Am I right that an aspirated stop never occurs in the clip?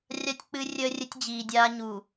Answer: yes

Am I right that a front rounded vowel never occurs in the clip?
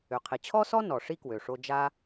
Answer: no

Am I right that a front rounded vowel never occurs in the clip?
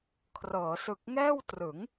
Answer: yes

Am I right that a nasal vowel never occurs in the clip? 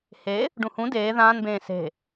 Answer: no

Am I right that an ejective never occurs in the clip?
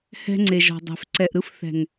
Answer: yes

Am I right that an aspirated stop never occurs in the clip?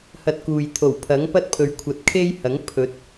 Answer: no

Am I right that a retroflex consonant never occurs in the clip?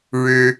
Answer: no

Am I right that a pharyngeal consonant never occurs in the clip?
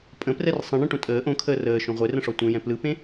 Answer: yes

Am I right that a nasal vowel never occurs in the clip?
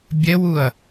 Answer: yes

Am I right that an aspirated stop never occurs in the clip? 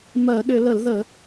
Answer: yes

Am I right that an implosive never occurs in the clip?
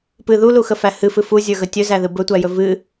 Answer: yes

